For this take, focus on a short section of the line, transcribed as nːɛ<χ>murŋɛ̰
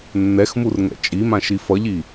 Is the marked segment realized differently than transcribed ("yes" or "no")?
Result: yes